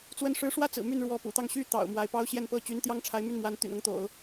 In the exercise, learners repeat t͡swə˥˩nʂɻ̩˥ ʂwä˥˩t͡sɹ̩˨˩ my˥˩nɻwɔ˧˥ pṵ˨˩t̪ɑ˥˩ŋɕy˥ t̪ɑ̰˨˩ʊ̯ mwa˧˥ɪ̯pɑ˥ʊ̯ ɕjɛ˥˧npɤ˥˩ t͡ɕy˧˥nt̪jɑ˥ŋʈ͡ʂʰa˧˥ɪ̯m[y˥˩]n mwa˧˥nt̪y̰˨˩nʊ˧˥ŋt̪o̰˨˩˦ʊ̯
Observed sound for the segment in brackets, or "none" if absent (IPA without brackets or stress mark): y˥˩